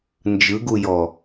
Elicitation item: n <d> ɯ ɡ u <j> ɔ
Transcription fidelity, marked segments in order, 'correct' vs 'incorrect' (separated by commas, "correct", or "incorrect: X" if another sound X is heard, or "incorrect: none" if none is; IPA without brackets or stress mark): incorrect: d͡ʒ, correct